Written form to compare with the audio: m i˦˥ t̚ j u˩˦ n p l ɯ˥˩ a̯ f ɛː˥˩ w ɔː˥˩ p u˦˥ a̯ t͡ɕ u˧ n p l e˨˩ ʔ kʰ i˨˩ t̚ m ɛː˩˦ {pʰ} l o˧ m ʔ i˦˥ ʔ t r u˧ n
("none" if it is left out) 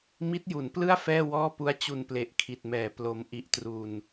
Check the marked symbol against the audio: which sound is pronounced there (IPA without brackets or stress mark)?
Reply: p